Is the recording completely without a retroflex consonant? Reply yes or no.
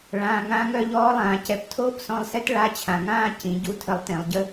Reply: no